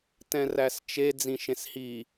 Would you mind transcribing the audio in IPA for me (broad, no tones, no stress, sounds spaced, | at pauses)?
t ɛ̃ r æ s t͡ʃ e d͡z ĩ ʃ ẽ s h i